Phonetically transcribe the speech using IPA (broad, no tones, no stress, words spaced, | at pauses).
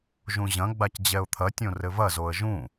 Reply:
ʒũʑɐ̃ɡ͡bac d͡ʑɛʊ̯t̪ʰɐtʲõ rɘvɐzoə̯ ʒũ